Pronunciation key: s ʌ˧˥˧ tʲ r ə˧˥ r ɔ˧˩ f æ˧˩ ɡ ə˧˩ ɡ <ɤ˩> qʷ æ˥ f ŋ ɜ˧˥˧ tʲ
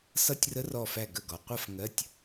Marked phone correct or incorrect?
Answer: incorrect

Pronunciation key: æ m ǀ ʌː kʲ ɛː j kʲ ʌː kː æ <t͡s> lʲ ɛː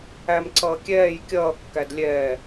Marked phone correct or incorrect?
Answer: incorrect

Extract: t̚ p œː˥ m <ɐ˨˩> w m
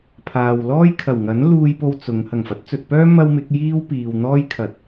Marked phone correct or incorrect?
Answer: incorrect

